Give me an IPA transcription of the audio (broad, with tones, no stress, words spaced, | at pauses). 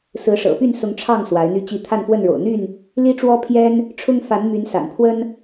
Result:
sɹ̩˨˦ʂɤ̰˨˩ py˥˨nsʊ˨˦ŋ ʈ͡ʂʰɑ˥˨ŋ swa˨˦ɪ̯n̪y˦t͡ɕi˥˨ t̪ʰa˥˨nfwə˥˨nɻo̰˨˩ʊ̯ n̪y˥˨n | li˦ʈ͡ʂwɔ˦pʰjɛ˦n | ʈ͡ʂʰʊ˦ŋ fa˨˦n my˨˦n sa̰˨˩npʰwə˦n